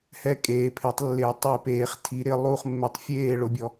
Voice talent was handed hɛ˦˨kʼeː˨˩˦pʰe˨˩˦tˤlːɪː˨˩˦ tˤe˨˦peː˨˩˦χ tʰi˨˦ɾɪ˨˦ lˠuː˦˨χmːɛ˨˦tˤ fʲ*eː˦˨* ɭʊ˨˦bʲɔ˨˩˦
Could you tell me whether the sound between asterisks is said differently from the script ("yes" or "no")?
no